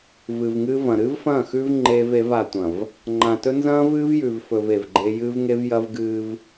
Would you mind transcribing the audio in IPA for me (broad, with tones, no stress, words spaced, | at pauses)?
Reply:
vɨ˨vŋɨː˦vɐ̃˨ ɾɨː˦vfɐ̃ː˦˨xʉː˦v ŋ͡ǃeː˦ve˨˦v a˨tʷɐ̃˨v | ŋ͡ǃã˨tɵ˦ nzɐ̃ː˦vɨː˦vjʉ˨vfɵ˨v e˨vɡ͡ǃe˦ jɨː˦vŋe˦v jɐ˦vɡɨː˦v